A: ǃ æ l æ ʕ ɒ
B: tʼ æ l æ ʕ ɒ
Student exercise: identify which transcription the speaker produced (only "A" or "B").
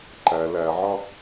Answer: A